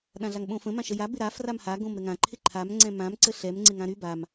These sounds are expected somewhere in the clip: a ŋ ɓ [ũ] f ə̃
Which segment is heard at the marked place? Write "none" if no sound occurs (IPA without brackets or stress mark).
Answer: õ